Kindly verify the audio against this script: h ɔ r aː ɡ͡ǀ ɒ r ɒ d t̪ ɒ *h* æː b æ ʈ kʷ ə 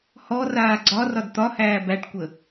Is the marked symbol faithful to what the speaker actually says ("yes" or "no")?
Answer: yes